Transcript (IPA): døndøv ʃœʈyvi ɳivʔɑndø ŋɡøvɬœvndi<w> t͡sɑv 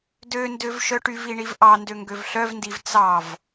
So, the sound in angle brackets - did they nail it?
no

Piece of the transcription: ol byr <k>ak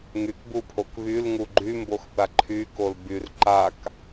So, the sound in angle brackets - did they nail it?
no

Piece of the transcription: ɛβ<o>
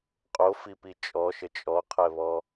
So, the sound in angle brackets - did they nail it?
no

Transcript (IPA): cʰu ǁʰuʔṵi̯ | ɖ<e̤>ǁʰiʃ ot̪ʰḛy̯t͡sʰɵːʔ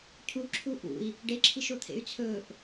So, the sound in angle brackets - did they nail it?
no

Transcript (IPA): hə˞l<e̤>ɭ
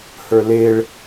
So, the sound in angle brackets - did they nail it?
no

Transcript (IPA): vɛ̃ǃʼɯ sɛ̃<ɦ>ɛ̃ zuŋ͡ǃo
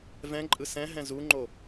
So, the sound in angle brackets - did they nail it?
yes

